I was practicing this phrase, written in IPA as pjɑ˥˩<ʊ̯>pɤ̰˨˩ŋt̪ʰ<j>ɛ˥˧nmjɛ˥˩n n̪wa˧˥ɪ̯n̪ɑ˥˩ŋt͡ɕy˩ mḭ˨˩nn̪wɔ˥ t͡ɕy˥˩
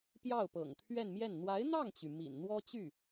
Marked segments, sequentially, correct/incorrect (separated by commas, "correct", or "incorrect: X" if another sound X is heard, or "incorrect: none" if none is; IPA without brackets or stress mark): correct, incorrect: ɥ